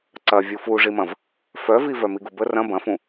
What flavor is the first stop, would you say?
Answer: click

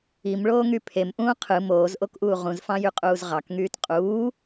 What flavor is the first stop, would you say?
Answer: aspirated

